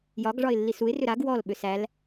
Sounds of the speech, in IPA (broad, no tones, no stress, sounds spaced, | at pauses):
j ɒ ɡ ʐ ɒ ɪ̯ lː i s u ɪ̯ r ʏ ɾ a ɡ w ɔ l ɓ ʏ s æ l